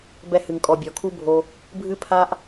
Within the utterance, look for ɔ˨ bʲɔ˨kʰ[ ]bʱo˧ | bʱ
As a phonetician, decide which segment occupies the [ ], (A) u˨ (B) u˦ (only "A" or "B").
B